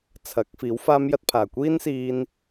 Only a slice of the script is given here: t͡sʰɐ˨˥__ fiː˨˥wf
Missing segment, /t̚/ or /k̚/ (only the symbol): k̚